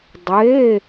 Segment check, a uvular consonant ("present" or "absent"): absent